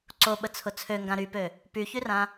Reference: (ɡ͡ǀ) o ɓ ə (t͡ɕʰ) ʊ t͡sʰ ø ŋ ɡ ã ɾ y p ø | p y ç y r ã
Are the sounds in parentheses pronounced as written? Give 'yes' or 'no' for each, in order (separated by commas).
no, no